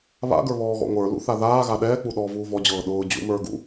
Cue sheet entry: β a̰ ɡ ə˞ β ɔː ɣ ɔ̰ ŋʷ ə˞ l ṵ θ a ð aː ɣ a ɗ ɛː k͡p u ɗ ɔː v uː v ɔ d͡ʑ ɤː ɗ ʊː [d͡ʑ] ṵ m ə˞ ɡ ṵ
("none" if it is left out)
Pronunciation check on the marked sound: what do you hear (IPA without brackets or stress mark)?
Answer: d͡ʑ